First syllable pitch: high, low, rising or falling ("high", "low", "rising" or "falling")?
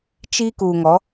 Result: high